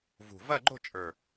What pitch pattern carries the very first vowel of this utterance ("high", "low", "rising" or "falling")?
low